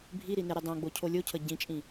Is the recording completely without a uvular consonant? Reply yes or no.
yes